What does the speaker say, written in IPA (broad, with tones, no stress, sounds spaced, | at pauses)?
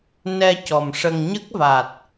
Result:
n ɛ˧ c ɔ˨˩ m ʂ ə˧ ŋ ɲ ə˦˥ k̚ v a˨˩ t̚